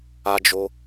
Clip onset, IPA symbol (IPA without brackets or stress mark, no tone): a